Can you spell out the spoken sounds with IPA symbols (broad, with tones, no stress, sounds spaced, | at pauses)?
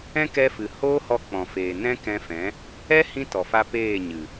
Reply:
ɛ̃˦ k ɛ˧ f ɨ˨ h oː˦ h ɔ˧ k͡p ɔ̃˨ f eː˨ n ɛ̃˦ k ɛ̃˧ f ɛ̃˨˦ | ɛ˦ h ĩ˧ t ɔ˨ f a˧ p eː˦˨ ɲ ɨ˨